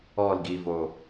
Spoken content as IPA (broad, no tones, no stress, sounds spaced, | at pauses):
ɔ l ɡ i v o